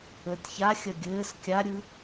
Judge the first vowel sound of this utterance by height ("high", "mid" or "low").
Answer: mid